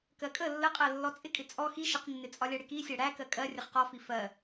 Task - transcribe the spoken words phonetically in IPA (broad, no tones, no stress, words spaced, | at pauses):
kɜkʼə lːəqʼɜ lːɔt͡sʼɪkʼɪ t͡sʼɔ xi ʃəqnːɪt͡sʼɒ lʲɜɽɪki sʲæɽæ kɜkʼɜ rʲəχqɔfi fɜ